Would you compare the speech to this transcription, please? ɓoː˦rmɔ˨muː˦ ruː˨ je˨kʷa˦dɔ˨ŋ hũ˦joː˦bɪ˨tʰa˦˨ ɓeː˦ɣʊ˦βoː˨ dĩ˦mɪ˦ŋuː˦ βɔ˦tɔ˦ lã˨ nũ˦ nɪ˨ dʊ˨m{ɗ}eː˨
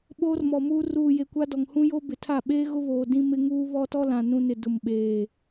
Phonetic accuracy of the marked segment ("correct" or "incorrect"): incorrect